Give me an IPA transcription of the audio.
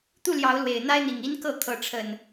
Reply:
t̪ u˥˨ l j ɑ˨˦ ʊ̯ l w e˨˩ ɪ̯ n̪ a˦ ɪ̯ n̪ i˨˩ ŋ i˦ n k ɤ˥˨ kʰ ɤ˨˦ ʈ͡ʂʰ ə˨˩ n

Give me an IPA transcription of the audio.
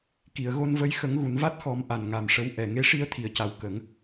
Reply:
k i˨˩˨ ə̯ ɣ o˧ n v ə˧˥ j x ə˨˩˦ ŋ ɣ u˨˩˨ n v a˦˥ t̚ x ɔ˨˩˦ m ʔ a˨˩ n ŋ a˨˩ m ʂ ə˧˥ w ʔ ɛ˨˩ ŋ e˧˥ ʂ i˧ ə̯ t̪ʰ i˨˩˨ ə̯ c a˨˩ w k ə˨˩˦ ŋ

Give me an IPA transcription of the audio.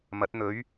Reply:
m ɐ˨˥ t̚ n̪ ɵ˨˥ ɥ

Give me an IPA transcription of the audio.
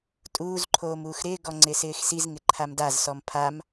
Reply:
tʼ uː z ǃʰ oː m uː x ɾ ɪː ɡ ɔ ŋ͡ǀ ɪ s ɪː x s i z ŋ ɪ ǃʰ a m d a z s ɔ m pʰ a m

